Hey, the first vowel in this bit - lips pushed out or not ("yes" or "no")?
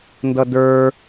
no